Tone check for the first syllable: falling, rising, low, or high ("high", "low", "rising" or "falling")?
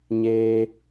high